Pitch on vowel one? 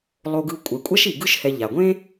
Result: low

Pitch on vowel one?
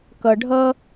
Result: low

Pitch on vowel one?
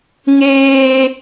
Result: high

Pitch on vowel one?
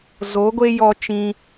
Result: rising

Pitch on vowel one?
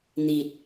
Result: low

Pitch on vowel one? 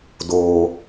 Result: low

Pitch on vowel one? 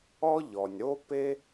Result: high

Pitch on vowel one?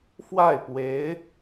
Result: falling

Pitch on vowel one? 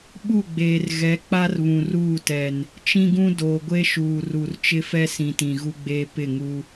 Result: falling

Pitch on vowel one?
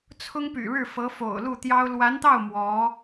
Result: high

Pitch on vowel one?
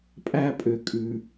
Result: high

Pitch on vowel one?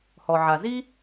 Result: low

